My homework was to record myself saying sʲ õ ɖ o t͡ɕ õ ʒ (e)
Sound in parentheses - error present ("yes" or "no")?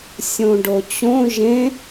yes